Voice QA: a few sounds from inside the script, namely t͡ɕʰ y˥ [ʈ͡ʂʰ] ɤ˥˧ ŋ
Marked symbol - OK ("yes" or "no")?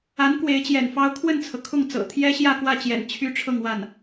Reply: yes